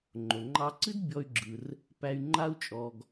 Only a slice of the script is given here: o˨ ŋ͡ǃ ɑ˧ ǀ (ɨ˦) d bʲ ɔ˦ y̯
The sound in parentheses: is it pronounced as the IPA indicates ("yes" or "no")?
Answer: yes